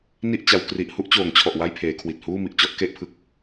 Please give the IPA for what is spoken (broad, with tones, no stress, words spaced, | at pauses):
ni˥˩ʔt͡ɕa˩˦wkri˨˩ʔ hu˥˩ʔt͡ɕoː˩˦ŋt͡ɕʰɔ˨˩ʔ wa˥˩jpʰeː˩˦kʰwi˨˩t̚ huː˥˩mi˨˩ʔt͡ɕɔ˥˩ʔ ke˥˩ʔpʰɯ˦˥k̚